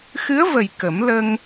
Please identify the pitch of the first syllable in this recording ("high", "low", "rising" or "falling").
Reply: rising